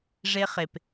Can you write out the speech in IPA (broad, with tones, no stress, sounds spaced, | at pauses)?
ʐ e˦ χ e˨ p